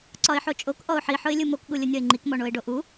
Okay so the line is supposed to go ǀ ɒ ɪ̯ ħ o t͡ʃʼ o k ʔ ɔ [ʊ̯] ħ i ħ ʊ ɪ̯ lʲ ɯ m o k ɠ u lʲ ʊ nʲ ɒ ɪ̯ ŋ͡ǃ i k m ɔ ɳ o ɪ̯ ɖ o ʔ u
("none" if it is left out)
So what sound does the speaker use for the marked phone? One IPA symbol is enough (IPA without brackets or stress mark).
ʊ̯